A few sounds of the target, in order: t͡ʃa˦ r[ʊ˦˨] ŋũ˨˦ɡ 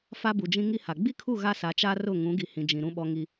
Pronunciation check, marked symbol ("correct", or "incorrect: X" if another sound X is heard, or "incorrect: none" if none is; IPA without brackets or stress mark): correct